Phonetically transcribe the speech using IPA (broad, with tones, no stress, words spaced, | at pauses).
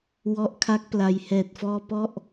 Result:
wɔ˦˥ʔkʰa˦˥k̚pla˧j hɛː˨˩t̚fɔː˧ pɔ˥˩ʔ